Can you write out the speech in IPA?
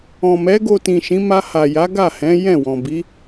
ɔ̃˨mɛ˨˦ ɡo˧tĩ˨ʃĩ˨˦ ma˧ha˨ja˨˦ ɡa˦˨hɛ̃˨˦ jɛ̃˦˨wɔ̃˨bi˨˦

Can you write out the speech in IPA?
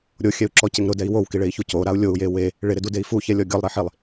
ɾʲoxʲɛu̯ǁɔcɪŋ ɾʊdɛi̯ wowkiɭei̯çu coɾau̯ lʲou̯je we | ɭɪɾɪdudei̯ fuçɛlʲɔ ɡʲɔlˠɾiħilˠ

